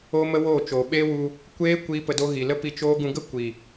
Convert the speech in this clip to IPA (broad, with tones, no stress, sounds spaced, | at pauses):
o˦ m ə˦ w oː˦˨ t͡ʃ oː˨ ɓ eː˦ w u˧ | kʷ eː˦ kʷ iː˦ p ə˧ d o˦ ɣ i˨ l ə˦ p i˧ t͡ʃ oː˦ ɡ ũ˧ ɡ ə˦ kʷ i˨